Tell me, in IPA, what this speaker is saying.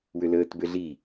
w ʏ l əː t b ʏ ɮ i

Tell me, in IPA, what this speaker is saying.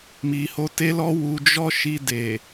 m i˨ h o˧ t e˦ l ɔ˦ w u˧ d͡ʒ ɔ˦ ʃ i˧ d e˨

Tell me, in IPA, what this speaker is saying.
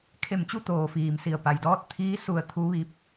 kʰ e˧˩ m t͡ɕ u˥˨ t̪ oː˧˩ f iː˩ m s i˧˩ ə̯ p a˩ j d ɔː˧˥ t̚ t̪ʰ iː˧˥ s u˧˩ ə̯ t̪ʰ u˧˥ ʋ i˧˥ p̚

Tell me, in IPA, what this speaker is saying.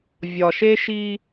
vʲ ɒ˨ ʃ e˦ ʃ i˦

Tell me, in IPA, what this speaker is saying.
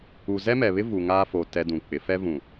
u˨ z ɛ˦ m ɛ˨ β ɪ˦ v u˨ ŋ aː˦ f o˨ t ɛ˦ d ũ˨ k͡p ɪ˨˦ f ɛ˦ v ũ˨

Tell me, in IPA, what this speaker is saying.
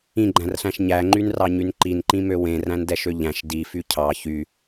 ĩ ɡ͡ǃ æ̃ r ɬ æ̃ ʃ ɲ æ ŋ͡ǃ y n r ɑ ɲ y n ǃ i n ǃ ĩ m ø w ẽ r æ̃ n d ɛ ʃ ø ʎ æ̃ ʃ d i f y cʰ ɑ ç y

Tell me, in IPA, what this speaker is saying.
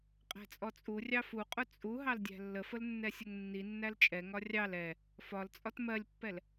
qʼ æ̤ t͡sʼ ɔ t͡sʼ u rʲ ɑ f u qʼ ʊ t͡sʼ u ɦ ɑ l dʲ æ̤ lː ə f ə l nː ɛ sʲ ʊ ŋ nː i nː æ l t͡ʃʼ ɛ ŋ ɒ rʲ ɑ l ɛ | f ɒ l t͡sʼ ɒ t m ɜ lʲ pː ɛ l

